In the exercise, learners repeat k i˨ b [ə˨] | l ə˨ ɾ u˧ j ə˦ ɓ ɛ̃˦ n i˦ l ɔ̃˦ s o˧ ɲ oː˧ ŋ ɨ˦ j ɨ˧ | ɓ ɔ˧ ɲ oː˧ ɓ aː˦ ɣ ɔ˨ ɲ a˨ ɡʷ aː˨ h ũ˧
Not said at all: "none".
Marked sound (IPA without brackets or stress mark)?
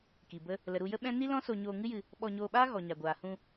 ə˦